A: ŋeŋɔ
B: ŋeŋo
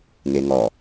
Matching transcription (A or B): A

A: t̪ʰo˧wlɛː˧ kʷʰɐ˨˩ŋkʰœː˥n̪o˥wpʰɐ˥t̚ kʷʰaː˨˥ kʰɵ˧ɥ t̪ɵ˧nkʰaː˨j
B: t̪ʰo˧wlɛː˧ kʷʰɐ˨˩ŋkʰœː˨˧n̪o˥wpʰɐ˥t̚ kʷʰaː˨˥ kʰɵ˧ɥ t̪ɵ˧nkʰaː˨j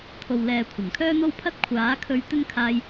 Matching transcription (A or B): A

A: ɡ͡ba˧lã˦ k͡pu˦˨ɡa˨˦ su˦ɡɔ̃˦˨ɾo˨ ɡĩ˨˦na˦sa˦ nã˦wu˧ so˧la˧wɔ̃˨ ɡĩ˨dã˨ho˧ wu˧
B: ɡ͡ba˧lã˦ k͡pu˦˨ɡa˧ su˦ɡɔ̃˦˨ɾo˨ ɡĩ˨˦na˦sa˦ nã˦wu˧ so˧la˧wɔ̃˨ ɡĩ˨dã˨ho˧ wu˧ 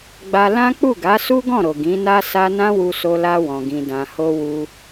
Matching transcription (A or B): A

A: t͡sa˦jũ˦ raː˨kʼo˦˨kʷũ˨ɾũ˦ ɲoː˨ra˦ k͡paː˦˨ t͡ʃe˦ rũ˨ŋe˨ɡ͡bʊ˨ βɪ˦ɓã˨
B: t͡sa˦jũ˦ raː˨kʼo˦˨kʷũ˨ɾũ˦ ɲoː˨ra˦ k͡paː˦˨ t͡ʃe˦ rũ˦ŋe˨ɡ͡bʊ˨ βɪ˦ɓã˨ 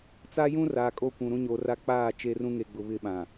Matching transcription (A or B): B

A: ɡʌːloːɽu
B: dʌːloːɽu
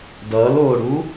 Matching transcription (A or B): B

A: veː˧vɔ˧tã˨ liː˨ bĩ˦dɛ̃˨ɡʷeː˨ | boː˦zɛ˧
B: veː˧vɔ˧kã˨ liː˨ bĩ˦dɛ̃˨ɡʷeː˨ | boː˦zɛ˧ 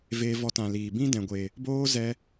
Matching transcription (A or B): A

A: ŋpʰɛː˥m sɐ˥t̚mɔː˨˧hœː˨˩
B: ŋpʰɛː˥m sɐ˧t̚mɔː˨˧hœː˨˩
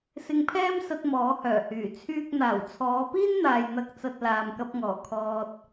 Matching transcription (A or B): B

